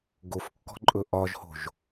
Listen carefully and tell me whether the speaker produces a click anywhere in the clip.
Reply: yes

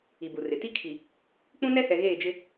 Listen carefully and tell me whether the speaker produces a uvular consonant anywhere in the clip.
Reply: no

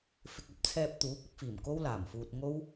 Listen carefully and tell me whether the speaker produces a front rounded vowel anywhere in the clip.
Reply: no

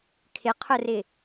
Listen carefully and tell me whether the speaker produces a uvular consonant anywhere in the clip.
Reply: yes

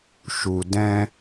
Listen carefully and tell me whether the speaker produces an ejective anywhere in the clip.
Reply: no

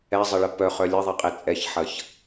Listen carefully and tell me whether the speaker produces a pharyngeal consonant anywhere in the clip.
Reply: yes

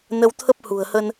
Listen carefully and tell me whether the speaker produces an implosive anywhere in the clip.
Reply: no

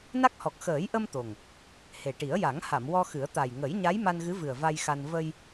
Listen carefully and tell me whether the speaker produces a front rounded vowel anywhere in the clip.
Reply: no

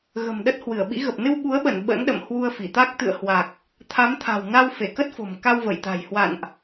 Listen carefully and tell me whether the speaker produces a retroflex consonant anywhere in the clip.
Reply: no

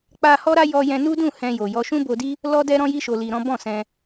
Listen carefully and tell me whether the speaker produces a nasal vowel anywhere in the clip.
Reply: yes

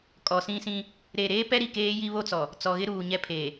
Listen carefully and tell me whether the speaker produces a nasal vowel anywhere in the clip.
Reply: yes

